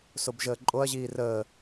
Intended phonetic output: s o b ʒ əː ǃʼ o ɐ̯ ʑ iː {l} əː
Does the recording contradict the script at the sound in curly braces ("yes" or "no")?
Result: yes